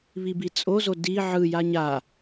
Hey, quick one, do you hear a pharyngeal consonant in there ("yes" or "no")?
yes